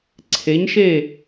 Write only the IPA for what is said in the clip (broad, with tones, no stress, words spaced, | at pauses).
ǀʰe˩˥ɲʃe˥˩